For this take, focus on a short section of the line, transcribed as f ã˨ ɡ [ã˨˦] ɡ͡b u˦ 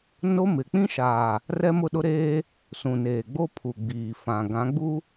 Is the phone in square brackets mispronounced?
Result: no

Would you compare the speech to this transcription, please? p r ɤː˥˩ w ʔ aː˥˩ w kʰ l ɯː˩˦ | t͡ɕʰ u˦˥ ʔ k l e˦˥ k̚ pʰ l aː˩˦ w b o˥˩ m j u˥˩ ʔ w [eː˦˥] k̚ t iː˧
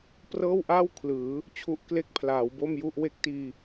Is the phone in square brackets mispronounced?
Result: yes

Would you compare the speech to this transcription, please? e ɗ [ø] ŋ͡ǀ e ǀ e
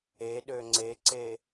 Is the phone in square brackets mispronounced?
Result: no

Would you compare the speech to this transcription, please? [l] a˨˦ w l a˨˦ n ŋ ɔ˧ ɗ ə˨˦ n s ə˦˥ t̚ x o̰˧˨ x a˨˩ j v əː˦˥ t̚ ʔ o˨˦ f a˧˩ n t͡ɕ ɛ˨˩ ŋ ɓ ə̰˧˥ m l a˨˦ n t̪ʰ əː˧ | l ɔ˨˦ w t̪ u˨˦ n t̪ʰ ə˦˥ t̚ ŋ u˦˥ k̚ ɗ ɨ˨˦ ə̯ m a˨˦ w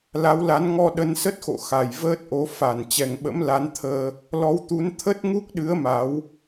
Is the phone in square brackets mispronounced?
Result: no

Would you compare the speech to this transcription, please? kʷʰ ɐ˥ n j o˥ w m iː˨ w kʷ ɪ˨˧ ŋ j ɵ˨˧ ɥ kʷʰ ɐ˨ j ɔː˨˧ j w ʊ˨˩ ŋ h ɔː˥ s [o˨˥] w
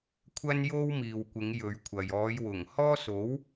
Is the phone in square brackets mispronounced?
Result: no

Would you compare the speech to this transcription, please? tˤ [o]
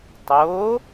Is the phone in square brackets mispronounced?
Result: no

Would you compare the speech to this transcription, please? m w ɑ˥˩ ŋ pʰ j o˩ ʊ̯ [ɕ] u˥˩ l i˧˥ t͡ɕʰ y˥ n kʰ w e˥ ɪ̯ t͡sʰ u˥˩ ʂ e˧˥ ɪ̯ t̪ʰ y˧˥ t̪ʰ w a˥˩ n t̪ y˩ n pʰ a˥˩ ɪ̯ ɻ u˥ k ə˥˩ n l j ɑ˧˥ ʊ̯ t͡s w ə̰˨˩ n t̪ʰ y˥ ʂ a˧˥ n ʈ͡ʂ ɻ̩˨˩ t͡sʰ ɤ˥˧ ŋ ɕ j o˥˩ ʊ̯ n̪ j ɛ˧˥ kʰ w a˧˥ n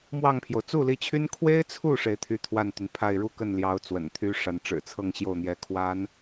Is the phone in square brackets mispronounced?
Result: yes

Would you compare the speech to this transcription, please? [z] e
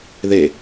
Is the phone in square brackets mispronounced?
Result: yes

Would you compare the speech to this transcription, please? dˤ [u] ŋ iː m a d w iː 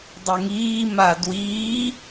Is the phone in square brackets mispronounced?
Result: no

